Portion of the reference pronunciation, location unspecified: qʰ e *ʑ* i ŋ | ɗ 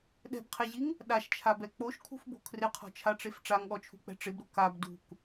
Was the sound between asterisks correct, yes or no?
yes